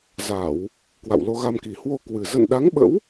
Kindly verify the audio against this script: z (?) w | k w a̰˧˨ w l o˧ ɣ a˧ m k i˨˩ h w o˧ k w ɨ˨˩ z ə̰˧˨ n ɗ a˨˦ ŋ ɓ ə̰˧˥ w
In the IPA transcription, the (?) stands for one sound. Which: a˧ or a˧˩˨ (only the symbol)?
a˧˩˨